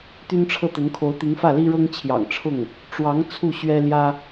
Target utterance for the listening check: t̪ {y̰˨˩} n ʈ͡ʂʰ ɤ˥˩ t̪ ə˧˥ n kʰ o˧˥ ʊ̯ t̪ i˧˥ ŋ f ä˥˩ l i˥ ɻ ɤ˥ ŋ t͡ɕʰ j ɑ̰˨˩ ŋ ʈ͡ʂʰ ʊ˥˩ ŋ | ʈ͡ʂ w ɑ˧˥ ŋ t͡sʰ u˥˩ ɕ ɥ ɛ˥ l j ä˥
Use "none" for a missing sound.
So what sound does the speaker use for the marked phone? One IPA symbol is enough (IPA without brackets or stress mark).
y˥